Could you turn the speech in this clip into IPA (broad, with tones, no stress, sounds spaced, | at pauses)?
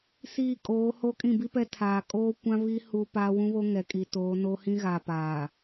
s iː˦˨ kʼ oː˨˦ h o˦ kʼ ĩ˦˨ b i˦ p ɛ˦ tʰ aː˨ kʼ oː˦ kʷ ã˦ β iː˦ h uː˦ p aː˦ w ũ˦ β o˦ ŋ ɛ˨ kʼ i˨ t oː˨˦ n o˦ h ĩ˦ ɣ a˨ p aː˨